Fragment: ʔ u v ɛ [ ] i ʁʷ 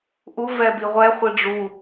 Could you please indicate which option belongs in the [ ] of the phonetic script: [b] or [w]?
b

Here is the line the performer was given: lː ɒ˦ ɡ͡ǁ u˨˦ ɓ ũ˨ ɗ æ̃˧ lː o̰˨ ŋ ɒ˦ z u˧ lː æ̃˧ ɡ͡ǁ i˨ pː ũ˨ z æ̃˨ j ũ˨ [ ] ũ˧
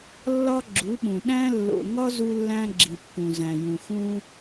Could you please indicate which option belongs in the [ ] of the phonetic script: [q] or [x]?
x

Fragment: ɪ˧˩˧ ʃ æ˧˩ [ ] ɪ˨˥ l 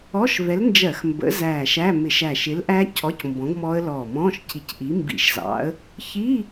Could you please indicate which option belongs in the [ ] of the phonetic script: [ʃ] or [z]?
ʃ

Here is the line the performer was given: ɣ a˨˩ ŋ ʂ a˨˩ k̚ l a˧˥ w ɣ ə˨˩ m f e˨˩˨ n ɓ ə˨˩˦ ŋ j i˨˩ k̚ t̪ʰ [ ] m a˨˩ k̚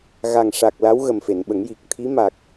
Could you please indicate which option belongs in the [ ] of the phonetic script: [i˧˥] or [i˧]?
i˧˥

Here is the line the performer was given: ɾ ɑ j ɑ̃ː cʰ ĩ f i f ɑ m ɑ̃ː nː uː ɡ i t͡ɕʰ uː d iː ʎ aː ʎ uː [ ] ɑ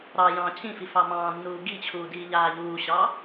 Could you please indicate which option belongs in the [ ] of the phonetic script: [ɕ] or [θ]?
ɕ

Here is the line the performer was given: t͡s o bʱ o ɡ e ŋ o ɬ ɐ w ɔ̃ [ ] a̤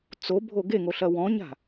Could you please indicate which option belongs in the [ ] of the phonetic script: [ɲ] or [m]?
ɲ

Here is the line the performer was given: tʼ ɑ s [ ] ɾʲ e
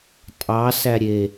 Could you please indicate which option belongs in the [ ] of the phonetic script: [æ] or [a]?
æ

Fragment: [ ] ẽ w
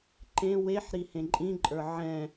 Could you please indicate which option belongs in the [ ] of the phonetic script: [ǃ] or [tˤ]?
ǃ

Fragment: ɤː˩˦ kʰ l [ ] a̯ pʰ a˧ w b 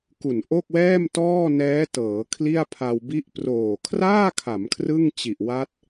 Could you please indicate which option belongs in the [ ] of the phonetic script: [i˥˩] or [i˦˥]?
i˥˩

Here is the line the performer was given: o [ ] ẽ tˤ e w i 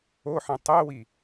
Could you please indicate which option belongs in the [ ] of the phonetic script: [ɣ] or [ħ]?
ħ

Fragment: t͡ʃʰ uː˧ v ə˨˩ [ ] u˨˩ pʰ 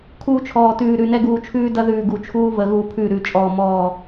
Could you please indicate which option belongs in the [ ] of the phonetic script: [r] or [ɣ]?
ɣ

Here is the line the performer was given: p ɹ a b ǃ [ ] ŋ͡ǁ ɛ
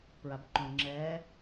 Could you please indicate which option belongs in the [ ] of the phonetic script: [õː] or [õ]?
õ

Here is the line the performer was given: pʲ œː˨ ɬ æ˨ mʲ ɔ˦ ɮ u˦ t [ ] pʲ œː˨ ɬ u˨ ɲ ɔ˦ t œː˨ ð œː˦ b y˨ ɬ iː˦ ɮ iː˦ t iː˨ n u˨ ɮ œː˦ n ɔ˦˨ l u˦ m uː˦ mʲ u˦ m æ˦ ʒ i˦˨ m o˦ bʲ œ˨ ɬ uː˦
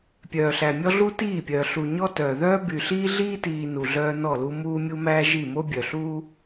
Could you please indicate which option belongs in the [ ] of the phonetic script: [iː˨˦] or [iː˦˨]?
iː˦˨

